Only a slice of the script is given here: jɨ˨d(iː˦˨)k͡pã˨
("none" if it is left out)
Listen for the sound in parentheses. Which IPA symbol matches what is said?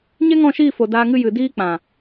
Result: iː˧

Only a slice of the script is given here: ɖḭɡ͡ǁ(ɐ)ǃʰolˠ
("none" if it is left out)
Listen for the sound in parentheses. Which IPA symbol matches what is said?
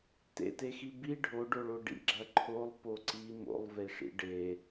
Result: ɐ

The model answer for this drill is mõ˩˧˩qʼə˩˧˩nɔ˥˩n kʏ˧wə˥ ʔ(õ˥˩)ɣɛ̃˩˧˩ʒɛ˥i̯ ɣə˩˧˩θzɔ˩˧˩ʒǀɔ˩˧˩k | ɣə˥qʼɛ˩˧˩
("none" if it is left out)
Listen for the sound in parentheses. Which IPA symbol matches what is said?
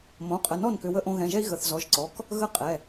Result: õ˧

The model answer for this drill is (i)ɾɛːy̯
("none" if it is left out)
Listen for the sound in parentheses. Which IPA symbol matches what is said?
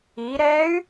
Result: i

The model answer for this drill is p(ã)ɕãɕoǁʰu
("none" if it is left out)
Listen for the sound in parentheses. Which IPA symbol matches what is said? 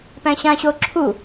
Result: æ̃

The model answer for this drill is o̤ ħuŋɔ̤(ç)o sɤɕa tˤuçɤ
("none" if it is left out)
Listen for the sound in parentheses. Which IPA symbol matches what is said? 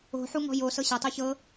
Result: j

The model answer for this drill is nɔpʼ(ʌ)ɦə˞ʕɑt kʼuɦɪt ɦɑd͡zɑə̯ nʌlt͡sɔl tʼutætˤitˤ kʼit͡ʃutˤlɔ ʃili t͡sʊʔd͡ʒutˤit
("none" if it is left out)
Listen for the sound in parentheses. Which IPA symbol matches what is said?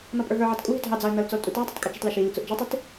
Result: ə˞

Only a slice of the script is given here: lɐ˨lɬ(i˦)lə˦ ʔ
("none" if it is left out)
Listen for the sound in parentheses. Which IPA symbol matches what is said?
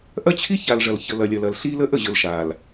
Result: i˦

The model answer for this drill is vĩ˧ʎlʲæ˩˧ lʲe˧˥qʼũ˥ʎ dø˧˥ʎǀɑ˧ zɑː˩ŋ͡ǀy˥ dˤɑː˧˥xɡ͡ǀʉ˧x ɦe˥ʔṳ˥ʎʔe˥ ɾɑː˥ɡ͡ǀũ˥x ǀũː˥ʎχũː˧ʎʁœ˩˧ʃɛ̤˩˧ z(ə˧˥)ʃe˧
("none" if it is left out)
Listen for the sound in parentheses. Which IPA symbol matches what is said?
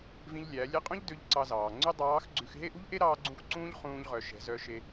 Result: œ˧˥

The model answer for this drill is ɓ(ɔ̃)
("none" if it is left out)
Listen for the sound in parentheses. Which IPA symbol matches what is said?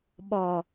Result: ɔ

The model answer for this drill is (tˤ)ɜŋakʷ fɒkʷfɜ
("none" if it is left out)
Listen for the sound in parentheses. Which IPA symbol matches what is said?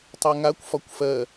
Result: tˤ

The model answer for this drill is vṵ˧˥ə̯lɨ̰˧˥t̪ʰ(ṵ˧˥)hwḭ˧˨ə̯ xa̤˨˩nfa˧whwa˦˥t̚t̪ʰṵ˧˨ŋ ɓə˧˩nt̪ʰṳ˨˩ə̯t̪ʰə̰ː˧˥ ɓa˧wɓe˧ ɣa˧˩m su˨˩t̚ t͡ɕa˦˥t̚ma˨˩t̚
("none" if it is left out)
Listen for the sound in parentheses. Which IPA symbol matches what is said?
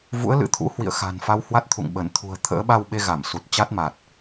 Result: ṵ˧˥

